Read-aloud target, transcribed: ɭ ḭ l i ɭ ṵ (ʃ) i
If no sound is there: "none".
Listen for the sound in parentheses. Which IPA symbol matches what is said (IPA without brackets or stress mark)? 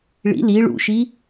ʃ